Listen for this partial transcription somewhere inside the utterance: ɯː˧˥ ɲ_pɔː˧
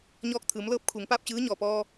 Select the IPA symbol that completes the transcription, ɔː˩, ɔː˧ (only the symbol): ɔː˩